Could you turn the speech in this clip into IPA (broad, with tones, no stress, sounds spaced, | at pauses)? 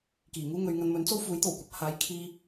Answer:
k iː˨˩ ŋ uː˥ ŋ ɵ˨˧ ɥ ŋ ɐ˧ n m ɵ˨˥ n t͡s o˥ w f uː˨˥ j t̪ o˨˩ w kʷ ɐ˧ p̚ h aː˨˥ j kʰ iː˧